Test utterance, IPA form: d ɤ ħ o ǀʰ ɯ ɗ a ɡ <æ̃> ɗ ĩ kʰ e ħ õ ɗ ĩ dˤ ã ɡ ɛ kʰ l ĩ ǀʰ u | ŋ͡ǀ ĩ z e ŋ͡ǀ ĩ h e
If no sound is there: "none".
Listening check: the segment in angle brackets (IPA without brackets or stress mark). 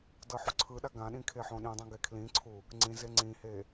ã